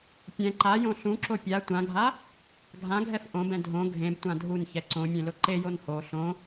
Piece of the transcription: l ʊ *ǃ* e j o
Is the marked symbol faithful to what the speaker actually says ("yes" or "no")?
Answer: yes